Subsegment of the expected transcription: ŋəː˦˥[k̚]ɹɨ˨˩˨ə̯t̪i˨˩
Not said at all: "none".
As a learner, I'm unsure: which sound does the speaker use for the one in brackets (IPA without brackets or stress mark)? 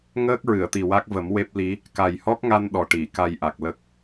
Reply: k̚